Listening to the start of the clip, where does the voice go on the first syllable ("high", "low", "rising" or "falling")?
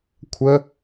high